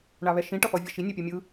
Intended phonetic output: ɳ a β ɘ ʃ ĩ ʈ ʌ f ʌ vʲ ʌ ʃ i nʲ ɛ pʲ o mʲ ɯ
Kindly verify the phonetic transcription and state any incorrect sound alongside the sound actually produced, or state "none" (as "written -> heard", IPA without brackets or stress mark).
ɘ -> ɛ